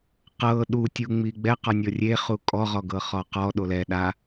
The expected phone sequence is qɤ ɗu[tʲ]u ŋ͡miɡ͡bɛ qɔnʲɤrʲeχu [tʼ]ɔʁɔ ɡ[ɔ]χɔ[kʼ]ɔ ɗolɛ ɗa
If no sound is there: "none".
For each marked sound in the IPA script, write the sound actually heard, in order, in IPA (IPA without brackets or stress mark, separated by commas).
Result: tʲ, kʼ, ɤ, q